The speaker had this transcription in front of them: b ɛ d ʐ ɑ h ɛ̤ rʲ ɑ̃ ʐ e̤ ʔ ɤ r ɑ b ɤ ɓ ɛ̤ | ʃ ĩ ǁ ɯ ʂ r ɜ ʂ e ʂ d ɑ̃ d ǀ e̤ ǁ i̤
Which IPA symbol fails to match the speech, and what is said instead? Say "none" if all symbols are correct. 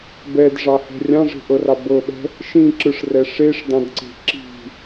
ɜ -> ɛ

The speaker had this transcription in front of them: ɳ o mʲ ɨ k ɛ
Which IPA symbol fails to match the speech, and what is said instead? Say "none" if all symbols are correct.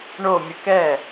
none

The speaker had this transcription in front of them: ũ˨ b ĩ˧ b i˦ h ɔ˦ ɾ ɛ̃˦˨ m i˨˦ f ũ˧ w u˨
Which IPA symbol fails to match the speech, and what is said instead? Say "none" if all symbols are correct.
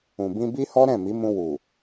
f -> m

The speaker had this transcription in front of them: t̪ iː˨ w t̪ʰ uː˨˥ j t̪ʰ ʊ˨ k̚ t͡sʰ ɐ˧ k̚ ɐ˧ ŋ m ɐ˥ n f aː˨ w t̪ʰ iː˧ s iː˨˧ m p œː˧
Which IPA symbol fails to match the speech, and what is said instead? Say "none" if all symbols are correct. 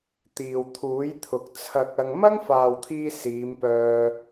n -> ŋ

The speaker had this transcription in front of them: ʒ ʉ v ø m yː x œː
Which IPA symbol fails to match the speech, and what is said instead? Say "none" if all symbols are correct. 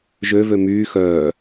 ʉ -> ø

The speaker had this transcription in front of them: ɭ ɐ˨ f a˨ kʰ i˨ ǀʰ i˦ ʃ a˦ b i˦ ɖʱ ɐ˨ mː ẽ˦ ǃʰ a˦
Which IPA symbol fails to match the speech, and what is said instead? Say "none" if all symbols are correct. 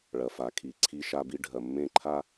none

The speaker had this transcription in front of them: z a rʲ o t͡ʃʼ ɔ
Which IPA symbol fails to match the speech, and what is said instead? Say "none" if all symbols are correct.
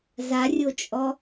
none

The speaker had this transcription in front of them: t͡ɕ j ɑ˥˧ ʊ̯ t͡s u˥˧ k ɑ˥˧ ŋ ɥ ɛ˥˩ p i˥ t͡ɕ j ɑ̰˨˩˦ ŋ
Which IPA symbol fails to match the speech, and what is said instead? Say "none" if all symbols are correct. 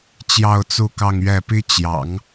none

